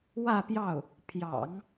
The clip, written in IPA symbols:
w ä˥˧ p j ɑ˥˩ ʊ̯ | pʰ j ɑ̰˨˩˦ ŋ

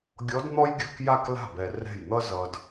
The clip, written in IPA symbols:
ɡʲ ɔ˧˥ d n̪ ɔ˥ j ɡʲ ɯ˧˥˧ k j a˥˧ k l a̤˥˩ b ɛ˨ r ɛ̤˥˩ j n̪ ʌ˥ z ʌ˨ d

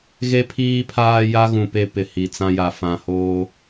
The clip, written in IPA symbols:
ɣ e˦ pʰ iː˦ pʰ aː˦ j a˦ ɣ ũ˨ p e˦ p ɪ˨ h i˨ t͡s ã˦ j a˨ f ã˨ h oː˦

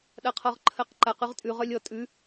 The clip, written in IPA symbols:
ɗ a qʰ ɔ ʁ ǃʰ ɜ q ǃ a q ʉ ʁ tʼ ʉ ʁ œ lʲ ɔ tʼ ʉ

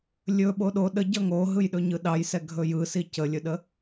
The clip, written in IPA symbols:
lʲ ɵ ɓ o ɗ o ɗ ə ɟ ʌ ŋ o ɦ ɯ j ɗ ɵ ɲ ɯ ɗ ɑ j s ɛ ɡʱ ɵ j ɯ s i c ə lʲ ɵ ɗ ə

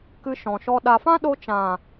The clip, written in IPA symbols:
k ɨ˧ ʃ ɔ̃˨ ʃ ɔ˧ ɗ a˨ f ã˦ ɗ o˧ t͡ʃ ã˨

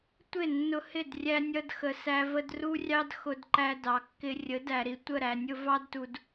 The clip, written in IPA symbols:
tʷ ɪ˦˨ nː ʊ˧ h ɪ˦˨ d rʲ æ˦ nʲ ʌ˦ d x ə˧ s æ˦ v ə˦ d r u˦ rʲ ɑ˦ d x ʊ˧ d ǃ æ˧ d ɑ˨ kː ɪ˧ rʲ ə˨˦ d æ˨ ɾ i˨ tʷ ə˦˨ ɾ æ˨ nʲ ʊ˦ v ɑ˦ d t u˨ d

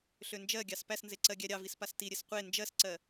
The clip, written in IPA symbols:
ɬ ø n d͡ʒ ɜ ɡʲ ɑ s p æ s n z e ǀ ɜ ɡʲ æ ɾʲ ɑ v i s p a s t i ɾʲ e s qʷ e n d͡ʒ ɜ s ǀ ɜ

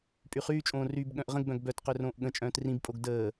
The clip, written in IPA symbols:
pʼ y χ yː t͡ʃʼ õː r y b ɠ œ̃ ʔ ʁ ə̃ ɡ b œ̃ ɡ b œ t q ø r õː ʔ ɠ ə̃ t͡ʃʼ œ̃ː t r ĩ b pʼ o ɡ d əː

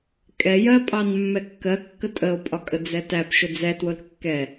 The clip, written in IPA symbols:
kʼ ɛ j ɜ pʼ ɑ n mː ɛ kː ɜ kː ə tʼ ə o̯ pʼ ɒ kʼ ə d͡z ɛ t æ p ʃ ʊ d͡z ɛ t w ʊ l kː ɛ

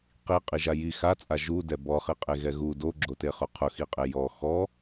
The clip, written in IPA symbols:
q i qʼ i ʒ a j i x a t͡sʼ a ʒ u d ɛ b ɔ χ i qʼ e ɣ ɛ ɣ u d o ɡ͡ǁ o t e χ ʊ qʰ ʊ x i qʼ e j ɔ x ɔ

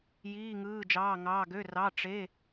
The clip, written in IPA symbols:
j iː˧˥˧ ŋ ɯː˧˥˧ d͡ʒ ɑː˧˥˧ ŋ ɑː˧˥˧ ɡ ø˧˥˧ r ɑ˧˥˧ ʈ͡ʂ e˧˥˧

